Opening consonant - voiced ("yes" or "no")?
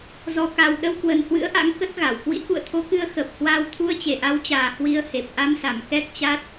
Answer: yes